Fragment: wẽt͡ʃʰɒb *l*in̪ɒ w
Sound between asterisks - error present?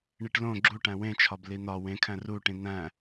no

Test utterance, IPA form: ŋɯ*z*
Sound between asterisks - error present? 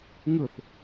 yes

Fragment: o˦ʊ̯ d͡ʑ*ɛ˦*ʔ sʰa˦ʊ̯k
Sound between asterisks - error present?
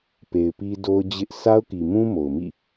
yes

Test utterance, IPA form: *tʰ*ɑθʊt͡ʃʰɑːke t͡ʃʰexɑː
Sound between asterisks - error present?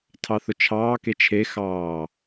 no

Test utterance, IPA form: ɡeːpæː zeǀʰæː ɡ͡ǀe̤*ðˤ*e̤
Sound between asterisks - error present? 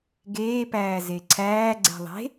no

